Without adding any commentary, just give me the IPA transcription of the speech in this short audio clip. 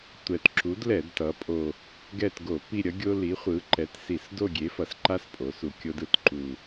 tʷ ɛ˨˩ t ǁ u˨˥ d l ɛ˧˩˧ d t ʌ˩˧ pʼ o˨˩ | ɡ ɛ˦˨ t ɡ o˧˩˧ p i˦˨ ɾʲ ʌ˨˥ ɡʲ o˦ l i˨˥ χʷ ɯ˨˥ ǃ ɛ˨˥ t s i˧˩˧ s d o˦˨ ɡʲ e˨˥ f ʌ˩˧ s ǃ a˦ s pʼ o˩˧ s u˨˩ kʲ o˦ d ɯ˧˩˧ t ǃ u˨˩

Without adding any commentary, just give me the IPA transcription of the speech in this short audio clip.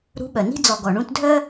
ɾ ṳ˨˥ ɓ œ˩ n i̤˧ d͡z ɔ˩ ɡ ɔ˩ ɳ ũ˧ t dʱ œ˥

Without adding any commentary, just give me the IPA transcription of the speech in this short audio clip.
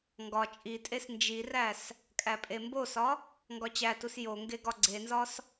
ŋ ɡ ɒ t͡ʃʼ i tʼ e s n d͡ʒ i r æ s | kʼ æ pʼ e m b o s ɒ | ŋ ɡ ɒ t͡ɕ æ t u s j o ŋ ɡ e ɡ ɒ ɡ͡ǀ e n z ɒ s

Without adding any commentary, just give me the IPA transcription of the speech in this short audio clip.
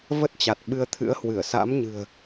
v ə˦˥ t̚ t͡ɕ a˨˩ t̚ ɓ ɨ˧ ə̯ t̪ʰ ɨ̰˧˥ ə̯ h w ɨ˧˩ ə̯ s a̰˧˥ m ɲ ɨ̤˨˩ ə̯

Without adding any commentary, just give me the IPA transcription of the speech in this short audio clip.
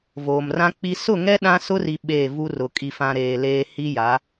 v oː˨ m r ã˦ k͡p i˦ s ʊ˦˨ ŋ ɛ˦ ɗ ã˦ s ʊ˦ r i˨ ɓ e˦˨ v u˦ r ʊ˨ kʼ i˨ f ã˨ ɾ eː˨ l eː˦ h i˦ j a˨˦

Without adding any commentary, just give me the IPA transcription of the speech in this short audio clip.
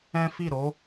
ɛ̃˦ f i˦˨ ɾ o˨˦

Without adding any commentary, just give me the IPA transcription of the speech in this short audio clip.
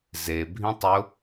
z e bʱ ĩ tˤ ʊ

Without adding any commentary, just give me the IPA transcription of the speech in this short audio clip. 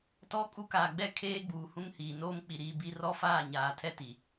t ɔ˦ kʼ u˦ k aː˨ ɡ͡b ɛ˦˨ kʰ eː˦ ɡ͡b uː˨ h ũ˦ ŋ h iː˨ n oː˦ m k͡p i˨ ɾ iː˨ b i˦ r ɔ˦ f aː˦˨ ɲ aː˨ tʰ ɛ˦ t i˨

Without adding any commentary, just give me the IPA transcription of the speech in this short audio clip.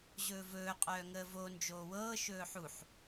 ʑ ɵː v ɵː qʼ œː ŋ əː v o n d͡ʒ oː w ɤː ʃ ɵː ħ u ħ

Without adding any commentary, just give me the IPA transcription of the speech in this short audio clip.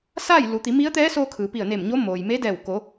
s aː˥˨ j l u˩˧ t̪ i˩˧ m i˧˥ ə̯ t̪ ɛː˧˥ s oː˧ kʰ ɯː˩ p i˧˩ ə̯ n e˧˩ m ɲ o˧˥ m oː˩ j m e˧˥ d ɛː˧˩ w k o˩˧

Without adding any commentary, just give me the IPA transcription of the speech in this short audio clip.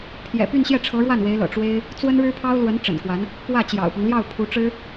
pʰ j ɛ̰˨˩ p y˥˧ n ɕ j ɛ˥˩ ʈ͡ʂʰ ɤ˧˥ ɻ w a˥˩ n w e˧˥ ɪ̯ l ɤ̰˨˩ ʈ͡ʂ w e˥ ɪ̯ | t͡s w ə˥ n ɻ ɻ̩˥ pʰ ɑ˥ ʊ̯ l w ə˧˥ n ʈ͡ʂ ə̰˨˩ n k w a˧˥ n | p w ä˥˩ t͡ɕ j ɑ̰˨˩ ʊ̯ p ɤ˦ ŋ l j ɑ˥˩ ʊ̯ pʰ u˧˥ ʈ͡ʂ ɻ̩˥

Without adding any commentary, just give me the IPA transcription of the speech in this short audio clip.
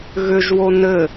ɣ ʏ ʒ w o n ɘ

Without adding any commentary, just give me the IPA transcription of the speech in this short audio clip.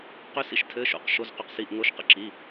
q ʏ˦˥ s ḭ˦˥ ʃ tʰ ɘ˧˥˧ ʃ o̰˧˥˧ q ʃ o˧˥˧ z q ʏ˧˥˧ q s i˧˥˧ ʔ ŋ o˦˥ ʃ q ə̰˦˥ ǁ i˧˥˧

